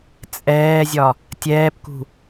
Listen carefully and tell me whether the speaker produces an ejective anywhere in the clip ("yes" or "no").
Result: yes